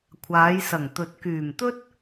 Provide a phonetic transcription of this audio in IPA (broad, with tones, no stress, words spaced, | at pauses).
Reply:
kʷʰaː˨˧jsɐ˨˩ŋt̪ɵ˨˥t̚ kyː˨˩mt̪ɵ˥t̚